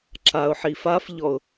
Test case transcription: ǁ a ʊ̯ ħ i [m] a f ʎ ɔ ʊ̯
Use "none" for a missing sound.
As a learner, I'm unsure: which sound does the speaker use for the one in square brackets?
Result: f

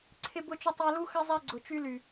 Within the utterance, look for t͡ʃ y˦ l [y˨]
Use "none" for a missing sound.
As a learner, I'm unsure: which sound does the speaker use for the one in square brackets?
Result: y˨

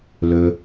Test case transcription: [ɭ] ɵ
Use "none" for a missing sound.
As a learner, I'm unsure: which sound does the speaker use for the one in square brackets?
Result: l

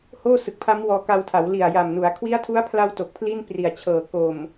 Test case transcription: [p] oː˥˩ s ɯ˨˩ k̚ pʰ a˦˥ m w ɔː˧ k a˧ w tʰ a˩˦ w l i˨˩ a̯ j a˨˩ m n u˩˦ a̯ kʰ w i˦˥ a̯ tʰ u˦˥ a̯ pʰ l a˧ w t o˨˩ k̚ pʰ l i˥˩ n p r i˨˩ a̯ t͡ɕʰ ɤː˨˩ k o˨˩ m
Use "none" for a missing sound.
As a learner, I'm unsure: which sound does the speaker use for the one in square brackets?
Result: h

